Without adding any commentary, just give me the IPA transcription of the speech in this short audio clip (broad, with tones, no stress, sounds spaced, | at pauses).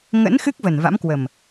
ŋ ə̰˧˥ n x ɨ˦˥ k̚ v ə˨˩ n v a̰˧˥ m k w ə˨˩ m